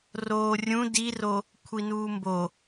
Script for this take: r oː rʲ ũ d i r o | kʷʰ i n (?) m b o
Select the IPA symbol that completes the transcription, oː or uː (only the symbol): uː